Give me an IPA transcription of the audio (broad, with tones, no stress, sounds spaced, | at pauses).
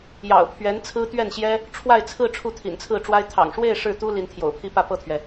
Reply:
j ɑ̰˨˩ ʊ̯ pʰ ɥ ɛ˧˥ n t͡sʰ ɹ̩˥ t̪ ɥ ɛ˥˩ n ɕ j ɛ˥ | ʈ͡ʂʰ w a˥˧ ɪ̯ t͡sʰ ɹ̩˥˧ ʈ͡ʂʰ u˥˩ t̪ʰ ḭ˨˩ n t͡sʰ ɹ̩˥˩ ʈ͡ʂ w a˥ ɪ̯ t̪ʰ ɑ̰˨˩ ŋ ʂ w e˥˧ ɪ̯ ʂ ɻ̩˥˩ t̪ u˥ l i˧˥ n t̪ʰ j o̰˨˩ ʊ̯ pʰ i˥ p ä˥˧ p ɤ˥˩ t̪ʰ ɥ ɛ˩